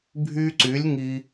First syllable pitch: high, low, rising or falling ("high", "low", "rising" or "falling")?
high